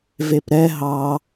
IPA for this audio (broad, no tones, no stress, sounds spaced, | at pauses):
v e p ɾ ɛ ɦ ɑ